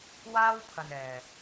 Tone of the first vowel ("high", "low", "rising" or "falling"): high